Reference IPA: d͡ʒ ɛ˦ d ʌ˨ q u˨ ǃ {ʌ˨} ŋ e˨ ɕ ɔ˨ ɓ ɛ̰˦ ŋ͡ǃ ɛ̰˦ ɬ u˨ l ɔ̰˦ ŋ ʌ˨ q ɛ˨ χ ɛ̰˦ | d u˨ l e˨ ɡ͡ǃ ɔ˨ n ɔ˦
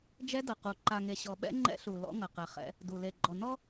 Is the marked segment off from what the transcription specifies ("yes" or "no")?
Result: yes